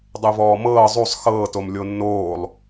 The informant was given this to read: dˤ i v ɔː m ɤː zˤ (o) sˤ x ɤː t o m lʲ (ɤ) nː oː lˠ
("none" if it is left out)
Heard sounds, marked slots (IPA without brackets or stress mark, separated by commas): u, o